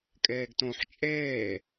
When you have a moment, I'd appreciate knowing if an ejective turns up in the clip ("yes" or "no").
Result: yes